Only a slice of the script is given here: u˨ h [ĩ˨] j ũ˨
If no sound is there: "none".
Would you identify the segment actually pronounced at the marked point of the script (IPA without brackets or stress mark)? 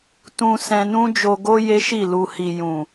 i˨